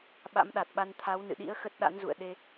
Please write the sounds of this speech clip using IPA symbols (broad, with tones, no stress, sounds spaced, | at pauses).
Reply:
ɓ a̰˧˥ m ɗ a˨˩ t̚ ɓ a˧ n t̪ʰ a˨˦ w n ɨ̰˧˨ ɗ ḭ˧˥ ə̯ x ə˦˥ t̚ ɗ a̰˧˥ n z ṵ˧˨ ə̯ ɗ e˧